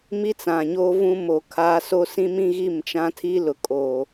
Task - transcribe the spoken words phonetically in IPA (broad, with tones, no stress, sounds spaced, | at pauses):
m i˦ t͡s ã˨ ɲ o˦ v ũ˦ m o˨ kʰ aː˦ s o˦ s ĩ˦ m ĩ˦ ɣ i˦˨ m t͡ʃ ã˦ tʰ i˦ l ʊ˨ kʼ o˨